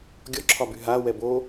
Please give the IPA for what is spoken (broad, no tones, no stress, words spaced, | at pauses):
ɡʲɔǁʰɒby ɦa wɛbo